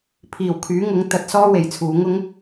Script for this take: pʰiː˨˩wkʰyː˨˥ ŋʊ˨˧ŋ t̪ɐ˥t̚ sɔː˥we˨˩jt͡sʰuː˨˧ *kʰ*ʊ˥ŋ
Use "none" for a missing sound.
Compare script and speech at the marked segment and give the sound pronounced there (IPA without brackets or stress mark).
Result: ŋ